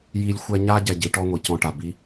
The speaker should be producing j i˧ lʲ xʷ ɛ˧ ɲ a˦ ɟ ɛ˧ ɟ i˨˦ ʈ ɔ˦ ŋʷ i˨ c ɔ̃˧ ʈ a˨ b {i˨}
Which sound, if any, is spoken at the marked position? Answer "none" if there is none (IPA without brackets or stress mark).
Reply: i˦